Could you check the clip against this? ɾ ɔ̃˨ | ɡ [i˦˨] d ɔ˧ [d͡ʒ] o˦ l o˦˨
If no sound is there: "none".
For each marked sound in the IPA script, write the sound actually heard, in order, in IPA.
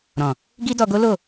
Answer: i˦, ɡ

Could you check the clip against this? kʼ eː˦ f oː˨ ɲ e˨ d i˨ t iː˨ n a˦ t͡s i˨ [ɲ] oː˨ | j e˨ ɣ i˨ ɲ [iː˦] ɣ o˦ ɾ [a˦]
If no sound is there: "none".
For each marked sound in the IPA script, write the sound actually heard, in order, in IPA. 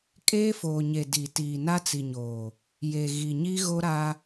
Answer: ɲ, i˦, a˦

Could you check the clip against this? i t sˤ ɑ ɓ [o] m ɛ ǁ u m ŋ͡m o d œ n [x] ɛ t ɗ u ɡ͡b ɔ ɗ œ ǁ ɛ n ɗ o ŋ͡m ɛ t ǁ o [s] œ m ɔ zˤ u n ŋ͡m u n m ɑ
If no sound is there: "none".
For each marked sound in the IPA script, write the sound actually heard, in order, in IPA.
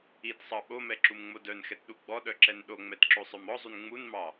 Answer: o, x, sˤ

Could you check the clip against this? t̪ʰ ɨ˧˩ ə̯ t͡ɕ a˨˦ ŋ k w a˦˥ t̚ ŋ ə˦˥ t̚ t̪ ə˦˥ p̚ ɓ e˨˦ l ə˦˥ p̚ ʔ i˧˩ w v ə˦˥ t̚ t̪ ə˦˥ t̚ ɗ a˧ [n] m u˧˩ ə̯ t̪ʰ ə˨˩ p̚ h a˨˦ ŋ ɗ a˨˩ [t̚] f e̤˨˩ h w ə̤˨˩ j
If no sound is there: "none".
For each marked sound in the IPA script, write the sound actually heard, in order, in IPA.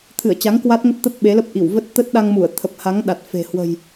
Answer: ŋ, t̚

